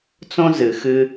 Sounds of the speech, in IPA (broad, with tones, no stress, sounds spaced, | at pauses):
t͡s õ˦ z ɨ˨ x ɨ˦